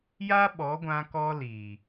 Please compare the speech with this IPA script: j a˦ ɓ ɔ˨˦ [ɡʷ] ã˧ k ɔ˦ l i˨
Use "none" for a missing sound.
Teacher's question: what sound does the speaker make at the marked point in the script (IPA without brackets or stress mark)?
ɡʷ